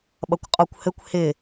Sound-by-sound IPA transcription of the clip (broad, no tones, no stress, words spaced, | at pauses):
ɓʌkʷqʼɔkʷhɘkʷ hɪ